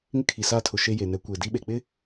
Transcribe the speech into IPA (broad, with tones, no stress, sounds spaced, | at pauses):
ŋ ɪ˦ kʰ i˨ s aː˦ tʰ ʊ˨ ʃ e˦ j e˨ n ɛ˨˦ kʷ eː˨ d i˦ ɓ e˨ k͡p ɪ˦